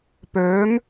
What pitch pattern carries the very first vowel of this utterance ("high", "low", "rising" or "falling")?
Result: rising